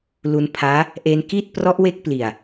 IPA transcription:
l u˧ n pʰ aː˦˥ | ʔ e˧ n k i˥˩ t̚ p r ɔ˦˥ ʔ w e˥˩ k̚ p l i˨˩ a̯

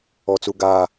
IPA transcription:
ɔ˨ t͡s u˨ ɡ aː˨

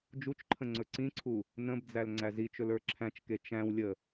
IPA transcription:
d͡ʒ u t͡ʃ ǃʰ ə̃ ŋ͡ǀ ɵ ǀ ĩ ǀʰ u | n ə̃ b d͡z æ l ŋ͡ǀ æ z i t͡ʃ ɵ l ə˞ ǁʰ æ̃ t͡ʃ k e t͡ʃ æ̃ w lʲ ə

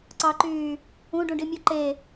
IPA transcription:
ǀ ɑ ǃ yː | ũ ɖ ũ ɖ i mʲ o ǃ e

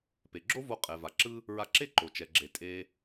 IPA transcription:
p e˩ ɡ͡ǁ o˥ v o˧ qʼ ɛ˩ v a˩ ǁ ɯ˥ | ɹ a˧ ǁ e˥ ǃ o˩ t͡ʃ ɛ˩ ɡ͡ǁ e˩ tʼ e˧

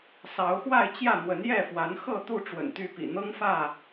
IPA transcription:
s ɑ˨˦ ʊ̯ x w a˥˨ ɪ̯ t͡ɕ j ä˥˨ n̪ w ə˨˦ n j ɛ˥˨ f w a˨˦ n x ɤ˥˨ t̪ u˥˨ ʈ͡ʂ w ə̰˨˩ n t̪ y˥˨ p ḭ˨˩ n̪ ɤ˦ ŋ f ä˥˨

